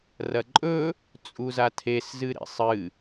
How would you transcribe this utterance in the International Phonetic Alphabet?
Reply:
r ɐ ǃʼ ɵ | t͡sʼ u z a tʰ e s z ɨ ɾ ḛ sˤ ɨ

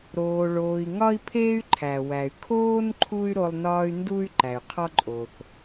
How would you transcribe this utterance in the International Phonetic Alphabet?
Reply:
ɾ oː˨ ɭ oː˨ i̯ ŋ ɒ˥ i̯ pʰ eː˥ y̯ ǃʰ æ˩ w æ˩ y̯ kʰ oː˦ n ǃʰ u˥ y̯ ɾ o˦ lˠ n ɒː˥ y̯ n d u˥ y̯ ǃ æ˩ y̯ qʰ ɒ˥ ǃʼ o˩ θ

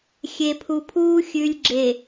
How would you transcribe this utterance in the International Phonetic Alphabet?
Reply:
xʲ e˨ pʰ u˨ pʰ uː˦ xʲ ʉ˨ lʲ ɡ͡ǁ e˨

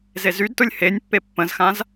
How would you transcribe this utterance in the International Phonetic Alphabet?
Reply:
z e z y d t ʊ lʲ h e nʲ pː e pː ə̃ z x ã z

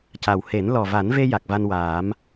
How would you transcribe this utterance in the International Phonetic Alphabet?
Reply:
c a˨˩ w h e˨˩˦ n l ɔ˨˩ v a˨˩˦ n v e˧ j a˨˩ k̚ v a˧ n w aː˨˩˦ m

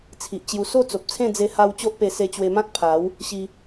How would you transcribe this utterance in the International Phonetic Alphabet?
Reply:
t͡sʰ i˨ ʔ t͡ɕ j u˧ s o˥˧ t͡s o˨ p̚ t͡sʰ ẽ˥˧ d͡z e˧ h a˧ w t͡ɕ o˦ ʔ p e˧ s e˧ t͡ɕ w e˧ m ã˦ t̚ pʰ a˨˦ w | ɕ i˧

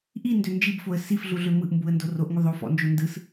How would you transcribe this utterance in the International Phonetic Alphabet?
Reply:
ʔ i n d ø n d͡ʒ i b f o ə̯ s i f ɮ u ɮ ø m ɯ ʔ m b u ə̯ n d o r o ʔ ŋ u ðˤ o f ɔ̰ n d͡ʒ o n d ɯ s

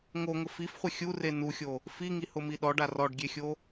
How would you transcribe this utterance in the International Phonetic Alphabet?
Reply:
ŋ o ŋ ʊ f i f χʷ ɪ xʲ u r e n u xʲ o | f i ŋ i h ʊ m i ɗ ɔ ɖ a r ɔ ɖ ɡʲ e xʲ o

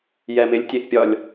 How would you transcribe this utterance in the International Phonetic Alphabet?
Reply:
j ɛ m ɪ lʲ tʲ e ʔ pʲ ɒ lʲ

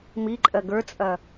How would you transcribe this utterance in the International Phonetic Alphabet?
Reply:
m i ǃʼ ɜ ɡ ə˞ t͡sʼ ɐ

